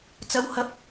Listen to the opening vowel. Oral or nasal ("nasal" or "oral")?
oral